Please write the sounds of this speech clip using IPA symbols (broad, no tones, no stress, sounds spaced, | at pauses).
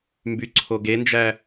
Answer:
m b y ǀʰ o ɡ e n d͡ʒ æ